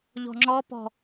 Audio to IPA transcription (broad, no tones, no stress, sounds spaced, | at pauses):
ʎ ɔ̤ ŋ͡ǁ ɔ p ɔ̤